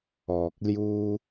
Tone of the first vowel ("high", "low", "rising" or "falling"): low